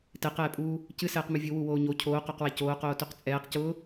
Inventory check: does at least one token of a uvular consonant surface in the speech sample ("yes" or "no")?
yes